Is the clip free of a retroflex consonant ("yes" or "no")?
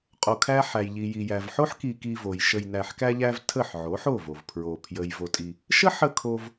yes